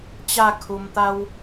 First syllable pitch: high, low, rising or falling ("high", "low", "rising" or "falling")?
falling